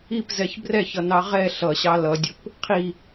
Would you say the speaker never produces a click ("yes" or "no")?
yes